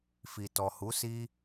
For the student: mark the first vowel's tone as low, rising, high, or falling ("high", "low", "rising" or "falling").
low